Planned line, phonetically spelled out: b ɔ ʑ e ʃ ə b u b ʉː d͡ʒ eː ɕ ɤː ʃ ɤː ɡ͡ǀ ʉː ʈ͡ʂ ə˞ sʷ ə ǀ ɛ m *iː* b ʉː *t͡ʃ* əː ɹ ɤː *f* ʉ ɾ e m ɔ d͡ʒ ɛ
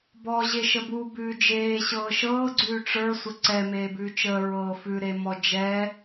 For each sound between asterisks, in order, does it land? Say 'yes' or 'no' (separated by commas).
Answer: no, yes, yes